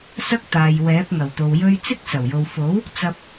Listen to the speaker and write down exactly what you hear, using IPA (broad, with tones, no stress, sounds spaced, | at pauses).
s ɐ˥ k̚ t̪ aː˨ j w ɛː˨˥ p̚ ŋ ɐ˨˩ w t̪ o˨ w j ɵ˧ ɥ t͡s ɪ˥ k̚ s ɐ˨˩ w j o˨ w f o˨˥ w | t͡s ɐ˧ p̚